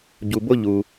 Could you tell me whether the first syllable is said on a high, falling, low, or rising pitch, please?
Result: low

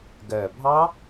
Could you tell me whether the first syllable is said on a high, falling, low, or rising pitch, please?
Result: low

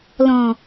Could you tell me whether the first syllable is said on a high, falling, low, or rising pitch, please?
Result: low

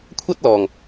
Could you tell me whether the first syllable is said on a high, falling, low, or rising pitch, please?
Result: high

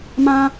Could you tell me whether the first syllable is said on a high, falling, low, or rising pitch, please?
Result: high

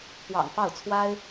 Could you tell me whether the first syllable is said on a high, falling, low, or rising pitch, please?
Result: low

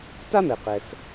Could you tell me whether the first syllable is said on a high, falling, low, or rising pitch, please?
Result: high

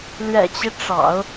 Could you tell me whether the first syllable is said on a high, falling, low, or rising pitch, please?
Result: low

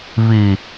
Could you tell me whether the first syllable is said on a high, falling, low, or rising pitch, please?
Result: low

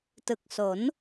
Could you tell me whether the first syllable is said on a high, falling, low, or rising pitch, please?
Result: low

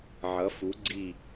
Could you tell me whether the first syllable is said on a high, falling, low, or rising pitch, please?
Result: rising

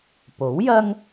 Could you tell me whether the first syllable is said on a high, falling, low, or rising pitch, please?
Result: rising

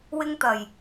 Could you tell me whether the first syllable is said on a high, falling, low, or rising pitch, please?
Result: high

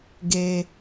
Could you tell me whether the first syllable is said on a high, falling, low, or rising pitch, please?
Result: high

